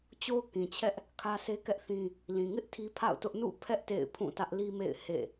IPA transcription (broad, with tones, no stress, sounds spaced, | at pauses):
t͡ɕ o˦ ʊ̯ k ĩ˨ t͡ɕʰ ɛ˦ ʔ | kʰ ä˦ s e˦ k ɛ˦ ʔ θ ĩ˦ | l ĩ˨ ŋ ɪ˦ ʔ tʰ i˦ pʰ a̰˦˨ ʊ̯ t ʊ˦ ʔ n ṵ˦˨ pʰ ɛ˦ ʔ t ḛ˦˨ ɪ̯ pʰ ũ˦˨ t ä˦ ʔ l i˦ m ḛ˦˨ ɪ̯ h ḛ˦˨